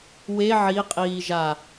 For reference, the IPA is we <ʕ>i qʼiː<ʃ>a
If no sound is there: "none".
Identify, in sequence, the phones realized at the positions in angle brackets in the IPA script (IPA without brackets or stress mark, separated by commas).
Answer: ʕ, ʒ